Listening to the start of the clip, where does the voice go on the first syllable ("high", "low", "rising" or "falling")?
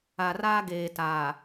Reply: low